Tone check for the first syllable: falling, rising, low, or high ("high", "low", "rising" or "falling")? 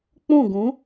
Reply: falling